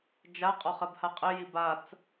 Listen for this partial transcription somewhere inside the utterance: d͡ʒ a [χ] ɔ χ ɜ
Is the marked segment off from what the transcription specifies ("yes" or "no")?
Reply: yes